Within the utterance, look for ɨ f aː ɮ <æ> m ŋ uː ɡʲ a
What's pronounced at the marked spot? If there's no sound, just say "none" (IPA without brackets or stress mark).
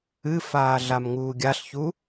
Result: a